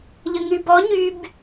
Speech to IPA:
ʎ ə ŋ y b ɔ ɲ y b

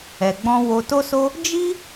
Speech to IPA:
ɛ˧ ɡ͡b ɔ̃˦ w o˧ t o˦ s o˦ | d͡ʒ i˦

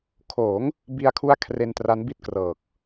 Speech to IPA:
kʰ oː˩˦ ŋ | b i˧ a̯ kʰ u˦˥ a̯ kʰ r e˧ n t r a˦˥ n b i˦˥ t̚ k r ɤː˨˩ k̚

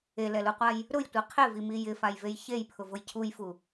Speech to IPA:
e l ɛ l u qʷ a j | ɾ ʊ j tʷ i qʰ ɪ v i m i j ɪ f a j v e j ç e j pʰ ʊ v ʊ j cʰ u j f u

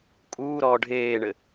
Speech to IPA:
kʼ uː ɾ ɔː ɖʱ eː ɳ ɘ

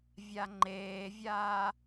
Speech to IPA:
vʲ a ŋ͡ǃ eː vʲ aː

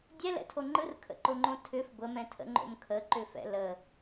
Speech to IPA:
dʲ ɛ l ɛ̰ tʰ o ŋ͡ǃ ɯ r kʰ ə̰ ǃ o ŋ͡ǃ õ tʰ ʏ f ɡʷ ə m ɛ̃ tʰ ə̰ ŋ͡ǃ o̰ m kʰ ə ǃ ʏ f ɛ̰ l ə

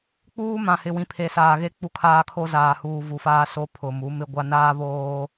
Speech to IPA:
k͡p uː˦ m ã˨ h ɪ˨ w ĩ˨ pʰ e˨ s aː˨ ɣ e˦ k͡p u˦ kʰ aː˦ kʰ o˦ z aː˨ h uː˨ v u˨ f aː˦ s o˦ pʰ ʊ˨ m u˨˦ m ɪ˦ ɡʷ a˦ n aː˦ β oː˦

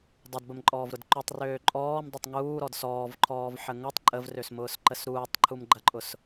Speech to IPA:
dˤ ɐ d b ə m ǃʼ ɔː v ɾ ʊ d ǃ u tˤ r øː ǃʼ ɔː m dˤ ʊ tˤ ŋ uː ɾ ɔ d s ɔː v ǃʰ ɔː v ħ ə ŋ ʊ tˤ ǃʼ ə v r ø s m ʊː s ǃ ə s ɾ uː tˤ ǃʰ u m ɡ͡ǃ ɐ ǃʼ ʊ s

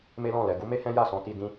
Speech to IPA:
m e˦ l ɔ̃˦˨ l ɛ˧ ɡ u˦ m e˦ h ɛ̃˦ j a˦˨ s ɔ̃˧ t i˧ d ĩ˧

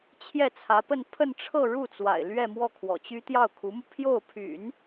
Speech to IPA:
t͡ɕʰ j ɛ˥˩ t͡sʰ ä˧˥ p ə˥˧ n pʰ ə˥˧ n ʈ͡ʂʰ ɤ˥˧ ɻ u˥˩ t͡s w a̰˨˩ ɪ̯ l ɥ ɛ˥˧ m w ɔ˥˩ kʰ w ɔ̰˨˩ t͡ɕ y˥ t̪ j ɑ˥˩ ʊ̯ kʰ u˧˥ m u˧ pʰ j o˥˩ ʊ̯ pʰ y̰˨˩˦ n

